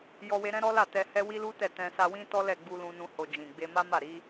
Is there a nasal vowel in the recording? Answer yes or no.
yes